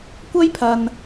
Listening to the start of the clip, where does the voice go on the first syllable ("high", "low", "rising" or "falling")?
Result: high